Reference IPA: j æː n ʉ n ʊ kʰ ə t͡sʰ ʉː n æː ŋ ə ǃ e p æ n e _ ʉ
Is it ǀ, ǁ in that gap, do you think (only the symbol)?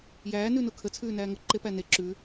ǁ